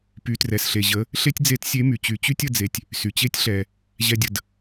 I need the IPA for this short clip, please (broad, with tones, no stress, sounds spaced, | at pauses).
p y˩˧ t r ɛ˩ s ɬ e˩ ʑ ə˩˧ | ɬ e˥ tʲ d͡z e˧˥ t sʲ e˧˥ m y˩ t͡ɕ y˩˧ t͡ɕ y˥ tʲ ə˧ d͡z e˩ tʲ | s y˩ t͡ɕ e˥ tʲ ɬ ɛ˩ | ʑ ɛ˧ dʲ ə˩ d